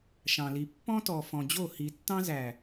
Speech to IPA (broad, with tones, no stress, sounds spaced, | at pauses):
ʃ ɑ̃˨ l i˨ pː ɔ̃˦ t ɔ˨ f ɔ̃˨ d͡ʑ o˦˨ h i˨ tː ɑ̃˦ z æ˨